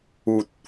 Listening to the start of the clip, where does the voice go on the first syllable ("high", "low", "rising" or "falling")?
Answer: low